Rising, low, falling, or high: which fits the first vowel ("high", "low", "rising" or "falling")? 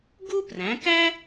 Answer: high